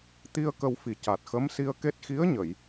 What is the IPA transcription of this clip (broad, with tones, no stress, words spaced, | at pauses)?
t̪i˧ə̯ kə˧wfi˨˩ ca˨˩t̚xə˧˥msi˧ə̯ke˦˥t̚ xi˧˥ə̯ɲə˨˩˨j